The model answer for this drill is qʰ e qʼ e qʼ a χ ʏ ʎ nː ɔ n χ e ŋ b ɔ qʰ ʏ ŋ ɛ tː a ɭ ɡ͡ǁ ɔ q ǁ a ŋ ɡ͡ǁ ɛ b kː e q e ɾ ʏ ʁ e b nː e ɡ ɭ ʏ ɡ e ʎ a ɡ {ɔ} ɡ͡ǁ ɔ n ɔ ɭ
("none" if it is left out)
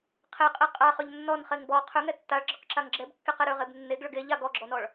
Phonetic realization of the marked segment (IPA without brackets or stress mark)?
ɔ